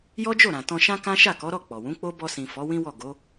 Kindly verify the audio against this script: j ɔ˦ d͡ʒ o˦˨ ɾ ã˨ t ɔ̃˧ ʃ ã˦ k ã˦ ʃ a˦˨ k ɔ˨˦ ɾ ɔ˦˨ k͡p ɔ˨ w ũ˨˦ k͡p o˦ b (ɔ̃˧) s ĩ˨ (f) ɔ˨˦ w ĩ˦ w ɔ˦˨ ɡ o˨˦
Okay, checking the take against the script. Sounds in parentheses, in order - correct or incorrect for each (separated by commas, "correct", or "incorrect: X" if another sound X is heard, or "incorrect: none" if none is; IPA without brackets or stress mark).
incorrect: ɔ˧, correct